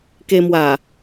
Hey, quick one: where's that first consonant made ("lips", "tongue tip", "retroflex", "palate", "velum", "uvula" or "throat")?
velum